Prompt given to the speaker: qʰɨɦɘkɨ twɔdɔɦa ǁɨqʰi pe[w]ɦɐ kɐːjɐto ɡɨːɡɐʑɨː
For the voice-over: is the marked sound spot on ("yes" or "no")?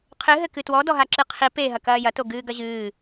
no